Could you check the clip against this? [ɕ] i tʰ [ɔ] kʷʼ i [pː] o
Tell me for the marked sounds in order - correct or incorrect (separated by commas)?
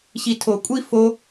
correct, incorrect, incorrect